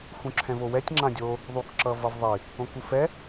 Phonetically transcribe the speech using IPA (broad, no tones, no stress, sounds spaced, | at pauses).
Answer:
x ũ ǁʰ ɛ̃ v o w ɛ tʲ ŋ͡ǁ ã dʲ o | ðˤ u k ǁ ʌ v ʌ v ðˤ i | õ k u f ɛ